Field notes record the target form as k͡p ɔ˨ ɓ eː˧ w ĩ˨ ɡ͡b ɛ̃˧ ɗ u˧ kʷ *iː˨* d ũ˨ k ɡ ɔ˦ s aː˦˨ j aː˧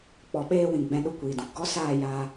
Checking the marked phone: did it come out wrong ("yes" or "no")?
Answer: no